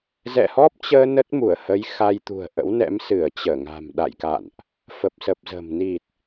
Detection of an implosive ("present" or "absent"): present